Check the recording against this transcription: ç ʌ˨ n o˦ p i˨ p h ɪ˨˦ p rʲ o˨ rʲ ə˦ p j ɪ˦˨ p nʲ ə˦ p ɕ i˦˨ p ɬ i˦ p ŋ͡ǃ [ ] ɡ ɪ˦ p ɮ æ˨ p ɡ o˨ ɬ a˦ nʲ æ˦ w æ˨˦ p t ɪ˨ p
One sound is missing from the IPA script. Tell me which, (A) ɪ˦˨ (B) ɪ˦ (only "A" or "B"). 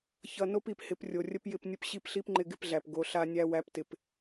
B